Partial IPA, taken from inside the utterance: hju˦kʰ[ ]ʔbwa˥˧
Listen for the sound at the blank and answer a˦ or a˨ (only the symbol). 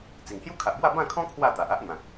a˨